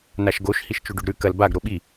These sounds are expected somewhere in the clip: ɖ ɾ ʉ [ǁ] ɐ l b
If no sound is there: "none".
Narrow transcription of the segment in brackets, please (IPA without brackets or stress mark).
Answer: k